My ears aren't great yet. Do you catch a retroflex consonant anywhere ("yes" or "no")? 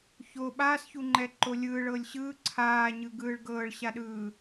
yes